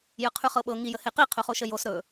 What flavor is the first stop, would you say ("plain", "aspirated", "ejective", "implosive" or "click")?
aspirated